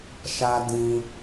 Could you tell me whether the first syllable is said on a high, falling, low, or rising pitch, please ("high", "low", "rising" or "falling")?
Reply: high